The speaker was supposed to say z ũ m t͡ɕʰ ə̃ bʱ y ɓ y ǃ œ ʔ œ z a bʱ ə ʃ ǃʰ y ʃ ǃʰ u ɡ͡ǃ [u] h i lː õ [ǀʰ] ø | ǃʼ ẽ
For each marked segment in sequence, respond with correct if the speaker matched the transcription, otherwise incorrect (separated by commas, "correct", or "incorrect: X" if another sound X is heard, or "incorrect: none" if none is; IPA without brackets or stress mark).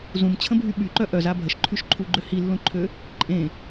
incorrect: ø, incorrect: ǃʰ